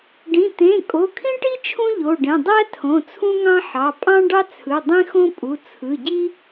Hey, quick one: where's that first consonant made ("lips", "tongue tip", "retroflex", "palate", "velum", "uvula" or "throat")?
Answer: retroflex